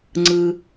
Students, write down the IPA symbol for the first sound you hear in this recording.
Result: ŋ͡ǀ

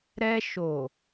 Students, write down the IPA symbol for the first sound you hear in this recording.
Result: ɾ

